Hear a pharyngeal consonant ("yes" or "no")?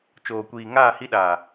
no